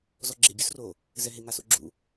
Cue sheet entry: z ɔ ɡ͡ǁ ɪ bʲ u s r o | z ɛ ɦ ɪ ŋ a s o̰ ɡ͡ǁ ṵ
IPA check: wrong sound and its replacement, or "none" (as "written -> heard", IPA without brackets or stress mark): none